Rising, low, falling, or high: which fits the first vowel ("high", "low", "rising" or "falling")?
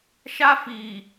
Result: high